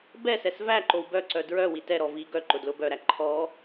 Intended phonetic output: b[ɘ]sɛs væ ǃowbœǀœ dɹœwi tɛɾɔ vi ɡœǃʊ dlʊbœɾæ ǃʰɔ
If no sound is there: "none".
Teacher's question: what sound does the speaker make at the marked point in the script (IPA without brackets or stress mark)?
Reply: ɛ